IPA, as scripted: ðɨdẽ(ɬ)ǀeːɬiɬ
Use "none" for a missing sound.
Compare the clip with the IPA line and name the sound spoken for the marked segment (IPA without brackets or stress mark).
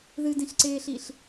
ɬ